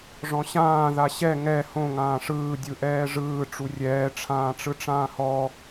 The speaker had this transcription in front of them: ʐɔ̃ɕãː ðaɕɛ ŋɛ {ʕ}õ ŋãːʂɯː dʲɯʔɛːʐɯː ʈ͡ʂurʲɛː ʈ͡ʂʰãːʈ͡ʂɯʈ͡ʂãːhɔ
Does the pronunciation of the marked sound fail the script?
yes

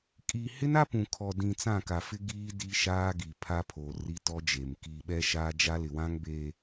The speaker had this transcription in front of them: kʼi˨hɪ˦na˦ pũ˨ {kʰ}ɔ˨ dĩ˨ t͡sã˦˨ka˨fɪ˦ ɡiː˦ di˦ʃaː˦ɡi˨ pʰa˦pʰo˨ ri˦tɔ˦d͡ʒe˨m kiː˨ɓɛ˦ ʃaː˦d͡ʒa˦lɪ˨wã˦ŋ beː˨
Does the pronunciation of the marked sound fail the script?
no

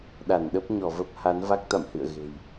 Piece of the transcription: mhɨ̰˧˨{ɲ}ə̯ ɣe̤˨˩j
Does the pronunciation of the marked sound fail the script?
yes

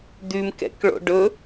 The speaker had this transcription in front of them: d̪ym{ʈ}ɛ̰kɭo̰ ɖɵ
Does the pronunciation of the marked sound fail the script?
yes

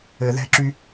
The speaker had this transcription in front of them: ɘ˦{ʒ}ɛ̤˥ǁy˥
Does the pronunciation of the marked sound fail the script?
yes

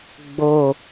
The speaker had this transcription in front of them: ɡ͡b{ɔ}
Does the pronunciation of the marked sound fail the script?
yes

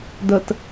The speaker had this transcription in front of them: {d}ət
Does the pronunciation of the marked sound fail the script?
no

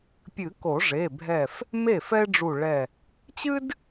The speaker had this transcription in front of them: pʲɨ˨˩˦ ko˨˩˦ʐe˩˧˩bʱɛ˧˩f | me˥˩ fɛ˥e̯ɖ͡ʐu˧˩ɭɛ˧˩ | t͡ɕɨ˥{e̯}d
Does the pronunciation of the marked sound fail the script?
yes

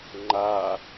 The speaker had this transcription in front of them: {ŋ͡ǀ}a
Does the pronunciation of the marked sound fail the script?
yes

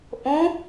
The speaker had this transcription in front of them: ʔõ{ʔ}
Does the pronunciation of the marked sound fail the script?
yes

